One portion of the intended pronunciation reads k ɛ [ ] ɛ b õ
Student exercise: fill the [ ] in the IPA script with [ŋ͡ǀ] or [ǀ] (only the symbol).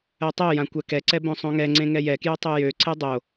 ǀ